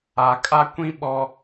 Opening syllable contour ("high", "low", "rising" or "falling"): low